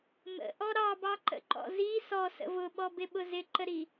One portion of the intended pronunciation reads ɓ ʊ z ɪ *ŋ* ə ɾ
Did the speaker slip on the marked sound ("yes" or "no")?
yes